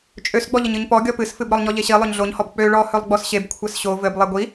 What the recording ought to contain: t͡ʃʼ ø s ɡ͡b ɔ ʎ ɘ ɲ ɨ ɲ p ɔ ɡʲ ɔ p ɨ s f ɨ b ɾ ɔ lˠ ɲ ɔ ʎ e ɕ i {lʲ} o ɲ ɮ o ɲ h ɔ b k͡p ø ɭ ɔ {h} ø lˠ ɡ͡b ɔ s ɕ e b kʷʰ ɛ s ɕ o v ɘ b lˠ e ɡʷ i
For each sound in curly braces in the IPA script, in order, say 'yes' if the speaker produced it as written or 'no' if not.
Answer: no, yes

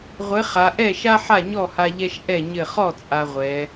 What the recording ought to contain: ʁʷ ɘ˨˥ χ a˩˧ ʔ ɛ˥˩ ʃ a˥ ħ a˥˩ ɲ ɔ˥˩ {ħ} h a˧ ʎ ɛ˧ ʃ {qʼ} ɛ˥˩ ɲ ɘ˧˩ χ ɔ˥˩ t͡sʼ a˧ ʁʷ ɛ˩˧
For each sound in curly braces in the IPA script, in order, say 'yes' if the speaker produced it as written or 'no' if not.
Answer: no, no

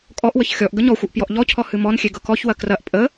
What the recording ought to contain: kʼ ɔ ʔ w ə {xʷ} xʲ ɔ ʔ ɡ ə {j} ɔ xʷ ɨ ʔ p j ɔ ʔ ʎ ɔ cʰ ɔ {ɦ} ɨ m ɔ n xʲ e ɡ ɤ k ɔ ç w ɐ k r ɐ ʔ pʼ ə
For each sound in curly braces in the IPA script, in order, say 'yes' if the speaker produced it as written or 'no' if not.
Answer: no, no, no

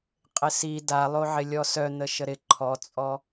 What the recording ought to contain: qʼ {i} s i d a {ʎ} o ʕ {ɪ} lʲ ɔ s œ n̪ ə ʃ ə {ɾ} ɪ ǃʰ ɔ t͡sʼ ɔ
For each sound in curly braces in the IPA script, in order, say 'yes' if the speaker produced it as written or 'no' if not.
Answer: no, no, yes, yes

